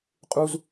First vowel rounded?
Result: yes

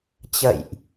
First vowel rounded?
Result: no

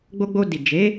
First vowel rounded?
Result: yes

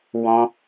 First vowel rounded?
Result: yes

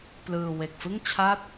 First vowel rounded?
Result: no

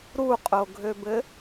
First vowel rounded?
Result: yes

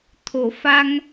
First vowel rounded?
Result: yes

